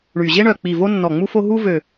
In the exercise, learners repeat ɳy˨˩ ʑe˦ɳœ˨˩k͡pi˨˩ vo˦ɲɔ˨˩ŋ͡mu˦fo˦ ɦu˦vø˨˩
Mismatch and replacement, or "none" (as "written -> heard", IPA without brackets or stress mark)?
ɲ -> nː